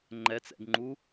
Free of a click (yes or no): no